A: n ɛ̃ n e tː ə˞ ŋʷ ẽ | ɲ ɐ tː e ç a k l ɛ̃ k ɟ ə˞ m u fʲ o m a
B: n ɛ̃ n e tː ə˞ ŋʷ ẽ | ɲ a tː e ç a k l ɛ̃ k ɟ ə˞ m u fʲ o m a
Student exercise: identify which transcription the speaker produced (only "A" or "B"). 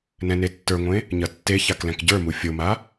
A